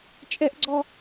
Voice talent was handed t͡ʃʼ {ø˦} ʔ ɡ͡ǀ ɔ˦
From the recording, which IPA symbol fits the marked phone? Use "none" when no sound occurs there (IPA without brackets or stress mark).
ɛ˦